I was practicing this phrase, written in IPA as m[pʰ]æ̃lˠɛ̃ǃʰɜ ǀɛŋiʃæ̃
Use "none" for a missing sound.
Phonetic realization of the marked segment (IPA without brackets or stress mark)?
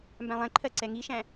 b